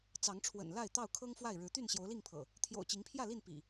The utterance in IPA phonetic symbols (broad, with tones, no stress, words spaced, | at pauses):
t͡sɑ˨˦ŋʈ͡ʂʰwə̰˨˩nla˥˨ɪ̯ t̪ɑ˥˨ʊ̯kʰɤ˦ŋfwa˥˨ɪ̯ɻɻ̩˨˦ t̪y˥˨nɕjo˨˦ʊ̯li˥˨ŋpʰɤ̰˨˩ | t̪ʰjo̰˨˩ʊ̯ t͡ɕi˨˦ŋpʰjä˥˨li˥˨n pḭ˨˩